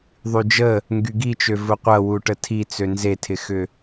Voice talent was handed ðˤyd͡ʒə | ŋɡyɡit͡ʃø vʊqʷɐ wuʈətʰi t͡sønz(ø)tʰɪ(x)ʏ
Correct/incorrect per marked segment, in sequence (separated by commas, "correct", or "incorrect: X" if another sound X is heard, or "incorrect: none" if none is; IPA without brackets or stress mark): incorrect: e, correct